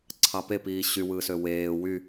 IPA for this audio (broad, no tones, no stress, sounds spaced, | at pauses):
ǀʰ ɑ p e p iː ɕ y w ɯː s ø w eː w y